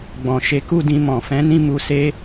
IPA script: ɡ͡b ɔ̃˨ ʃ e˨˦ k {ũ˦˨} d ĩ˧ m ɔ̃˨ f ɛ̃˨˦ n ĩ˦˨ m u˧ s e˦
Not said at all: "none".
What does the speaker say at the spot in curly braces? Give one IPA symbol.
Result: u˦˨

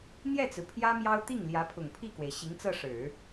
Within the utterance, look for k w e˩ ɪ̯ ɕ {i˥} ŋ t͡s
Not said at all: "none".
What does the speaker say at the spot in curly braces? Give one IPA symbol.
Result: i˧˥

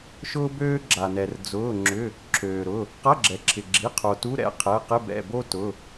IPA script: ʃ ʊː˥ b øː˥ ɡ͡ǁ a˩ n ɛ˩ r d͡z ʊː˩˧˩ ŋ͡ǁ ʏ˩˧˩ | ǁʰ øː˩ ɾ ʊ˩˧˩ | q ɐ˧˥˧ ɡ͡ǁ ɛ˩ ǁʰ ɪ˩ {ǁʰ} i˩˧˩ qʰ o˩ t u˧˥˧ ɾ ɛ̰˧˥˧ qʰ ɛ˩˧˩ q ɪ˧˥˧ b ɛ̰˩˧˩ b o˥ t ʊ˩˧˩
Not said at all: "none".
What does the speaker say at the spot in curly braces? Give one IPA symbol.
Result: ɡ͡ǁ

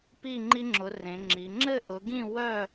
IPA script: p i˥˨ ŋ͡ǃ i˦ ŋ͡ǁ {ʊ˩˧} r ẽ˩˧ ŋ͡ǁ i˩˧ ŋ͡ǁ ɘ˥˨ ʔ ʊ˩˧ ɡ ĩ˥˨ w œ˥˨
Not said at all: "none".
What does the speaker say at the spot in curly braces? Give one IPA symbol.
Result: ʊ˩˧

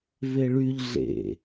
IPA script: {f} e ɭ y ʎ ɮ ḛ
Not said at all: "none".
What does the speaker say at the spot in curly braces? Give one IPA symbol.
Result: v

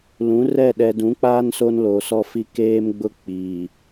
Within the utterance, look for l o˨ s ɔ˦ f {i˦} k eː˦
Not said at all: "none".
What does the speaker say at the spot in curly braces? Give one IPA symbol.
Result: i˦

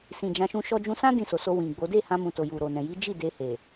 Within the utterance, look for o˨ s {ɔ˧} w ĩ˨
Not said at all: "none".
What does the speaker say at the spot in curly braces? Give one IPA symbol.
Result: o˧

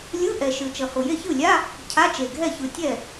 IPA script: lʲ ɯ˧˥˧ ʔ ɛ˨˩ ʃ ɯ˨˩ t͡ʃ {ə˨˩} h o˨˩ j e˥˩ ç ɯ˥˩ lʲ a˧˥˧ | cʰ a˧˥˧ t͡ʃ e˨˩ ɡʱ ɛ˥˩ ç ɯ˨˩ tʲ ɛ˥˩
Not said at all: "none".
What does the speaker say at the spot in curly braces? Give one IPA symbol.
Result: ʌ˨˩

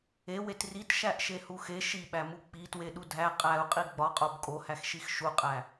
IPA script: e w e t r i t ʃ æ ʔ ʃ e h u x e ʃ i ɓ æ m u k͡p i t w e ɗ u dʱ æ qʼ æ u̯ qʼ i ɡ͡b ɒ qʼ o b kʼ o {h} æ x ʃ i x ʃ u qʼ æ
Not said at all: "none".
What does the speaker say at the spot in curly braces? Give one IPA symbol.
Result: h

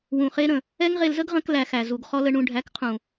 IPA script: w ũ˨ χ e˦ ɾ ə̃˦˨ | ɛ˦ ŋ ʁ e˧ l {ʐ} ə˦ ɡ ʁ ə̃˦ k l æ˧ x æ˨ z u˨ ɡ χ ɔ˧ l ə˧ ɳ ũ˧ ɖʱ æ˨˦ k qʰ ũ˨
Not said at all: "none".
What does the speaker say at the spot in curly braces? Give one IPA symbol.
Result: z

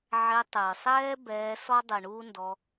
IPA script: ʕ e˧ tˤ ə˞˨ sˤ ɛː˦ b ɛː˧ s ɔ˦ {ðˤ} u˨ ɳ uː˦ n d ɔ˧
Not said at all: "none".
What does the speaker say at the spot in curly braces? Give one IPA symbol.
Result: dˤ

